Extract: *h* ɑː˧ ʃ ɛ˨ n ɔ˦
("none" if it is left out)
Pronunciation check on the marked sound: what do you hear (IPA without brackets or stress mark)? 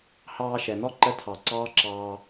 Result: h